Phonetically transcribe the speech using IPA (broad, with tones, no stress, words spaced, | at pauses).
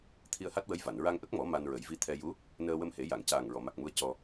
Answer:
t̪ʰi˧ə̯ha˦˥t̚wə˧˥j va˨˩˨n ɹa˧ŋʔə˦˥k̚mɔ˨˩˦ ma˧nɹə˨˩˦jvi˧˥ t̪ʰɛ˧ju˧˥ | nəː˧wə˧mhe˨˩˦ ja˨˩˨ŋcaː˨˩ŋɹɔ˨˩˨ ma˨˩k̚mu˧ə̯ cɔ˧